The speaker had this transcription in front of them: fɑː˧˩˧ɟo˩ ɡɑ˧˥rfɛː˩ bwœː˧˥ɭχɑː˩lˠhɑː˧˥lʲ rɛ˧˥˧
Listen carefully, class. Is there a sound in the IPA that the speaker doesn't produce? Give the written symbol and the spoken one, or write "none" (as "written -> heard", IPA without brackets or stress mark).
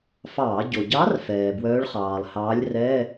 ɡ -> ɟ